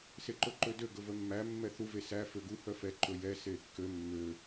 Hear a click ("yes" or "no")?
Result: yes